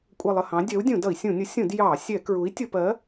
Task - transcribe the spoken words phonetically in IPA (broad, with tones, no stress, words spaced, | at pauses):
kʷʼɜ˦˨lˠə˦˨hɑ̃˨˥ dʲɜ˨˥u̯ dʲũ˧˩˧dʌ˧˩˧i̯sʲũ˧˩˧nʲʊ˨˥ sʲũ˧˩˧d jɑ˧˩˧sʲɛ˧˩˧ kɹu˨˥i̯tʲʊ˧˩˧pɜ˨˥